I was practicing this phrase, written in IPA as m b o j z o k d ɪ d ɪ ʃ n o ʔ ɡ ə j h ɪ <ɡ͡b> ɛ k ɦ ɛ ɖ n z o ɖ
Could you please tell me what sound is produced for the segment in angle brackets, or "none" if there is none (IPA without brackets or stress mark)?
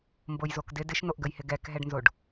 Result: ɡ